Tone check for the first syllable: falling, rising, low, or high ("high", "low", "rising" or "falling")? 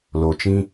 low